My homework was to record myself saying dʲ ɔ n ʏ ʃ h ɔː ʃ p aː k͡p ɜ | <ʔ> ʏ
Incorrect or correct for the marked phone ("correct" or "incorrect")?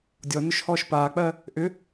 correct